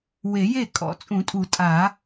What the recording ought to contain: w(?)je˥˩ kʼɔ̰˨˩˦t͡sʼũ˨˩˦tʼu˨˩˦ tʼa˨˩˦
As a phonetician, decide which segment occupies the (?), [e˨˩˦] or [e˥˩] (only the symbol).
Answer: e˨˩˦